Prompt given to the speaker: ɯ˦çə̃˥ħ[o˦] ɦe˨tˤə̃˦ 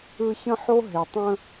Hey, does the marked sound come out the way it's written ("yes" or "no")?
no